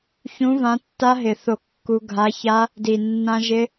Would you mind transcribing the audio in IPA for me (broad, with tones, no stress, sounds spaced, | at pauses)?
ç ũ˨˥ v ã˨˥ tː a˦˥ ɦ ɪ˨˩ θ o˥˩ kː u˦˥ ɡʱ a˨˥ ç a˦˥ | d i˨˩ nː ã˦˥ ʒ ɪ˦˥